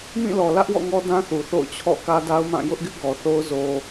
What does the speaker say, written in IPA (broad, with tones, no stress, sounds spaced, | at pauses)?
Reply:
m ĩ˦˨ l ɔ˨ l ä˦ ʔ w ɔ̰˦˨ ŋ ɔ˦ d ã˦ θ u˨ θ o̰˦˨ ʊ̯ t͡ɕʰ ɔ̰˦˨ k ä˦ d a˦ ʊ̯ m ã˦˨ j ʊ˦ ʔ ɡ ɪ˦ ʔ ɡ ɔ˨ θ o˦ ʊ̯ z o˦